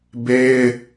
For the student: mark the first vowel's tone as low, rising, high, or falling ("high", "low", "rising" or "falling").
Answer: high